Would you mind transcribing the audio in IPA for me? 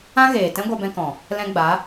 ã˦ɣeː˨ tɛ̃˦ ɡʷa˧bɛ̃˧kɔ̃˨ | lɛ̃˧ɡ͡ba˨˦

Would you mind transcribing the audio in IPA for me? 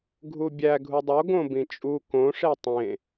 ɡʱubʲæ ɡʱudˤo ɡõbĩt͡ʃʼu kõ ʂetˤẽ

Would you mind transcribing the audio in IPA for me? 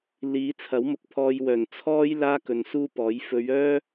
liː˨˧t͡sʰɐ˨˥wmʊ˨k̚ pʰɔː˧jwœː˨˩n t͡sʰɔː˥j laː˥kɵ˨˧n suː˧ pɔː˨˥j fɵ˨˧ɥ œː˥

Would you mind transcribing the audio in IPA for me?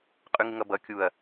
qʼʉŋɪŋʌbʌ kʲuɐ̯

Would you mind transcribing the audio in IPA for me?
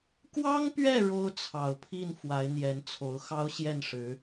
kwɑ˥ŋpɥɛ˥˩ ɻo˥ʊ̯t͡sʰɑ˨˩ʊ̯pʰi˥˩n fwa˧˥ɪ̯n̪jɛ˧˥nt͡sʰo˧˥ʊ̯ xɑ˥ʊ̯ɕjɛ˥˩nʂɻ̩˧˥

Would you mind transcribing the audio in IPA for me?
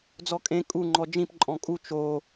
d͡zɔkʼẽ kʼu ŋ͡ǃɔd͡ʒĩp ǃʼɔ̃kʼu t͡ʃo

